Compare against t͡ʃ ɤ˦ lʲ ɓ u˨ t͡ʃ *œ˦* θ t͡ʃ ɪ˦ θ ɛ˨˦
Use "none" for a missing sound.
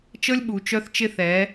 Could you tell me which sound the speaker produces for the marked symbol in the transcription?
œ˦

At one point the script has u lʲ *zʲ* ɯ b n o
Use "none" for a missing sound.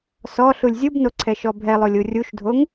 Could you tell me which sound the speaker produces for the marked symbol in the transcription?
zʲ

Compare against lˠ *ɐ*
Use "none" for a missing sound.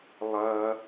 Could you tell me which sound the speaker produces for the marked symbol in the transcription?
ɐ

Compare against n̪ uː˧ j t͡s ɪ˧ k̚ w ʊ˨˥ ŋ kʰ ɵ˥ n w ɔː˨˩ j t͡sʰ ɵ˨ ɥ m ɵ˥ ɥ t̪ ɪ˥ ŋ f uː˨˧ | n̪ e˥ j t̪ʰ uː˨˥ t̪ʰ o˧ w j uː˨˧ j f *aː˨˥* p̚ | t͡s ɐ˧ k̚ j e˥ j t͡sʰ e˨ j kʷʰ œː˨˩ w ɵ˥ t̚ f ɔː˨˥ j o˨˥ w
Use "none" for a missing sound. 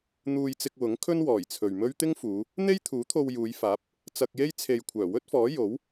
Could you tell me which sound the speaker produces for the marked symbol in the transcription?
aː˨˥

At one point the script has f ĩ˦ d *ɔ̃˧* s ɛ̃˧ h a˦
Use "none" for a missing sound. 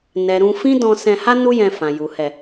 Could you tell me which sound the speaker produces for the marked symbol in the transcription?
ɔ̃˧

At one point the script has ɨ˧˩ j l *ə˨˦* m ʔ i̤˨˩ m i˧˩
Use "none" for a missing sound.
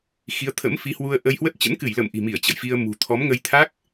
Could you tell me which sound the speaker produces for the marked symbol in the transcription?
ə̰˧˨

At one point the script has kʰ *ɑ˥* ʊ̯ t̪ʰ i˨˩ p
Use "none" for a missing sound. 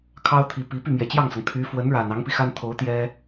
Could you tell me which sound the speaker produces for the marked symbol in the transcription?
ɑ˥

